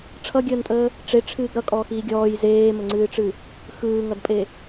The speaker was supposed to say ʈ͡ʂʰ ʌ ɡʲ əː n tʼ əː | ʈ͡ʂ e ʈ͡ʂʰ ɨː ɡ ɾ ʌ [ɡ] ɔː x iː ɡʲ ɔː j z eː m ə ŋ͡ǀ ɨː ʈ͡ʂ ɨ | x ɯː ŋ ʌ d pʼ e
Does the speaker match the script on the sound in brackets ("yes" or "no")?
no